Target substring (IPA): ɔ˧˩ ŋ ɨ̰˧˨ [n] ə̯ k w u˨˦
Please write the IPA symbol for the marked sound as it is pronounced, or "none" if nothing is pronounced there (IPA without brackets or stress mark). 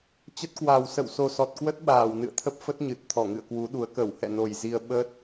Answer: none